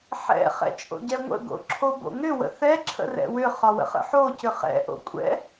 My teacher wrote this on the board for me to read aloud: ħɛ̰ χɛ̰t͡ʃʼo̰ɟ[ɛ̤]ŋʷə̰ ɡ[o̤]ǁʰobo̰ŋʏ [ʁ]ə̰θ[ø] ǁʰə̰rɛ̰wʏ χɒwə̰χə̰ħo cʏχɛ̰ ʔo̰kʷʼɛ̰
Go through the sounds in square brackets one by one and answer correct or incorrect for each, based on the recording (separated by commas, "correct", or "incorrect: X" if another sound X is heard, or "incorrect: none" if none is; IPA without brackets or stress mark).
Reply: incorrect: ɛ, incorrect: o̰, incorrect: w, incorrect: ɛ